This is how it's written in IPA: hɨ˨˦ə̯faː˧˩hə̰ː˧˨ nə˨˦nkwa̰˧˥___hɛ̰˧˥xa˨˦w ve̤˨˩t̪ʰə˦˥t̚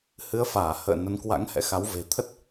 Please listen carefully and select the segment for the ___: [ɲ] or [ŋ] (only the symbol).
ŋ